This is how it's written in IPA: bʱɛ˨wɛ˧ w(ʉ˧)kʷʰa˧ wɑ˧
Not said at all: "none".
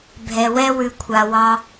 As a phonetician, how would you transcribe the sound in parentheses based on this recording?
ʉ˧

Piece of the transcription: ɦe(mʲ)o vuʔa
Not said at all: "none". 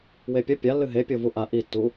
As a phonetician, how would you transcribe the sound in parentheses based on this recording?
pʲ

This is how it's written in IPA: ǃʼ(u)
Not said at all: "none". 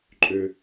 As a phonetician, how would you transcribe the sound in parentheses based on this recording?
ø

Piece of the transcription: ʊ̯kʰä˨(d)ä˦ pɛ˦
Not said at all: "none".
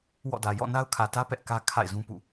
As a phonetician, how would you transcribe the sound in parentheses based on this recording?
t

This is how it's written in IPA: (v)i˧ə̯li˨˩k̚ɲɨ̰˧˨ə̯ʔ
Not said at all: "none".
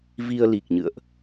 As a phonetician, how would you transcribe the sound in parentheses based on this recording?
v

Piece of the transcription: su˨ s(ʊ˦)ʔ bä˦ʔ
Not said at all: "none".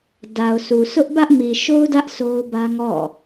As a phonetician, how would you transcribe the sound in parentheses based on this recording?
ʊ˦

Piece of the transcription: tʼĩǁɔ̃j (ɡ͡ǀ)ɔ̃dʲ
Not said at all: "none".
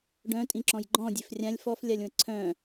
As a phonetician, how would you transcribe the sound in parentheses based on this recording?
ɡ͡ǃ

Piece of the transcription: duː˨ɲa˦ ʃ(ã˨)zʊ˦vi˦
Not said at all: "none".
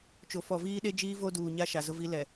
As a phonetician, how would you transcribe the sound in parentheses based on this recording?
a˨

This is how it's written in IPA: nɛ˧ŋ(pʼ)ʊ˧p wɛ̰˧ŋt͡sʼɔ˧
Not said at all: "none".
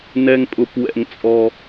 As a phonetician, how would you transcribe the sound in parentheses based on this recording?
pʼ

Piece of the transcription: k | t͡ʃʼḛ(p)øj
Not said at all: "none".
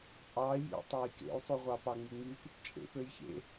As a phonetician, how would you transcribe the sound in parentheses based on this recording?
p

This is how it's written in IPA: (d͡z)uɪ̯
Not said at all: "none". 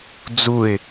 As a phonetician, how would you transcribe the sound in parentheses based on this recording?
d͡z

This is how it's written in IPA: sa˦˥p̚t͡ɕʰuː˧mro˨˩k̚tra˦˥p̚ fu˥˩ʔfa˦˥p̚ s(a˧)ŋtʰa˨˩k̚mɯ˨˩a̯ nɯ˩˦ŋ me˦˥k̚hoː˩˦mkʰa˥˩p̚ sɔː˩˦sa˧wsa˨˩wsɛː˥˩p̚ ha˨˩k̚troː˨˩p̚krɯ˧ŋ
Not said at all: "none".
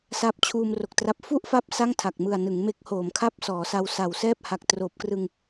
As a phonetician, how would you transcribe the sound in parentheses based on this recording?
a˥˩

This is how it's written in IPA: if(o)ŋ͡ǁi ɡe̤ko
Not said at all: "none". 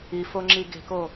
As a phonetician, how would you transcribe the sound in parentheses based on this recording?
o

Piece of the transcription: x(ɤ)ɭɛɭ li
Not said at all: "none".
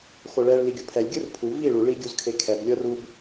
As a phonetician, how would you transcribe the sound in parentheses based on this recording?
o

